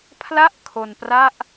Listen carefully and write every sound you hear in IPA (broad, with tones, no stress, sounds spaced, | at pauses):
pʰ l a˥˩ ʔ kʰ o˧ n p r a˥˩ ʔ